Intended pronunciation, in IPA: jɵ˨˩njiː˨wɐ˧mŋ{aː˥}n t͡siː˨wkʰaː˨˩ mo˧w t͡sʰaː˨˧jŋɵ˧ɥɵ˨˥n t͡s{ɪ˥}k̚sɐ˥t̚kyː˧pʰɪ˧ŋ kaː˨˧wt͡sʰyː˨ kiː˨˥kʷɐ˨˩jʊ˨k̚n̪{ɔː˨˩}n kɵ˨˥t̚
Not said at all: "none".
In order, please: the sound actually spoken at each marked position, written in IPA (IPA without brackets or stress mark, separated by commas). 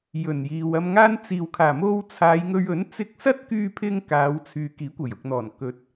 aː˥, ɪ˧, ɔː˨˩